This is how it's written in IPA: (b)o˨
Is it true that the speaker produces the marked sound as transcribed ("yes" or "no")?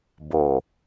yes